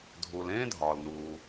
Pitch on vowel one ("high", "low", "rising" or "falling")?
low